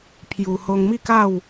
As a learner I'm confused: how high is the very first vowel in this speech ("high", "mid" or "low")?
high